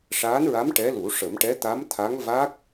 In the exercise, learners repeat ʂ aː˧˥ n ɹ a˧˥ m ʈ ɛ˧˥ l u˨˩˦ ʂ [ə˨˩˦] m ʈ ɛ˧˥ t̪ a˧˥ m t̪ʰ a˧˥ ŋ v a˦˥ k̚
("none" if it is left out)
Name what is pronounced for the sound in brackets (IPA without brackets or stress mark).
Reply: ə˨˩˦